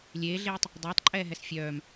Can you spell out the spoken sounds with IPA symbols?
lʲ eː ɮ eː tˤ | dˤ ɛː tˤ ǃʼ ɛː ɦ ɛ s fʲ œː m

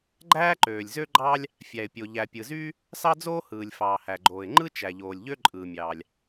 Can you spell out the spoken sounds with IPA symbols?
ɡ͡ǃ æː˥ ǃ øː˩ lʲ z ø˥ ɡ͡ǃ ɑː˥ lʲ | fʲ æ˩ ɪ̯ pʲ o˩ ʎ æ˩ pʲ ɯ˩ z yː˥ | s ɑ˥ d͡z oː˥ h ɯː˩ lʲ f ɑː˩ h æ˩ ɡ͡ǃ oː˩ ɪ̯ ŋ͡ǃ ɯ˥ t͡ʃ æ˩ ʎ oː˩ lʲ ʎ ø˥ ǃʼ ɯː˩ mʲ ɑː˩ lʲ

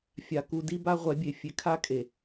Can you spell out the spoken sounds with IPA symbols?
fʲ a˨ k u˨ d i˦ b a˦ ʁʷ ɛ˨˦ bʲ e˨ fʲ e˨ kʰ a˦ kʼ e˨

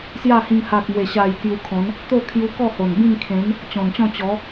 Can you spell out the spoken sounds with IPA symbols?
s j a˥˧ h ĩ˧ ŋ h a˨ k̚ m w e˨˩ ɕ a˨˩ j k j u˧ kʰ ɔ̃˨˦ n | t̪ o˥˧ kʰ j u˧ k ɔ˥˧ h o˨˩ n b ĩ˥˧ ŋ kʰ ẽ˨˦ n | t͡ɕ ɔ̃˨˩ n t͡ɕ ɔ̃˥˧ t͡ɕ ɔ˨˦

